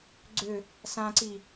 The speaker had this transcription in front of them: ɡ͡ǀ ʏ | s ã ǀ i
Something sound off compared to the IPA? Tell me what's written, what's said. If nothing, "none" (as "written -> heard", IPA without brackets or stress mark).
none